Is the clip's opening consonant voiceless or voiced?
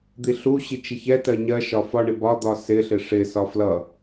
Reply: voiced